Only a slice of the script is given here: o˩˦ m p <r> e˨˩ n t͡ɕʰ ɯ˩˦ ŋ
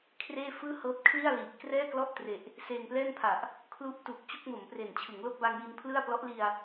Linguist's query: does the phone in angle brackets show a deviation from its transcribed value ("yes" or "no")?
no